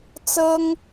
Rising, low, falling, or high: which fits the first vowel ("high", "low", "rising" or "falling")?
high